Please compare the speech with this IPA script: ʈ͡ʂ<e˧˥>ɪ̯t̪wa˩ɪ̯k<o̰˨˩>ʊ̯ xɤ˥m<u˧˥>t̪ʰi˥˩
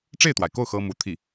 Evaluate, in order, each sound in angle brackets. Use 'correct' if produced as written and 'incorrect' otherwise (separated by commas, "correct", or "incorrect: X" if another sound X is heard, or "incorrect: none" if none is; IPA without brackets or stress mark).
incorrect: e˥˩, incorrect: o˥˩, correct